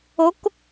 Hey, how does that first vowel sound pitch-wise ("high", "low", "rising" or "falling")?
rising